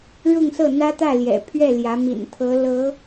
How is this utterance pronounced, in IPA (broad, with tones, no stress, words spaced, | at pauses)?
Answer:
ɻʊ˥˧ŋsɤ˥˩ n̪ä˥t̪ä˥˩ljɛ̰˨˩pʰɥɛ˥˩ ljä˧˥mḭ˨˩n t̪ʰɤ˧˥lɤ˧˥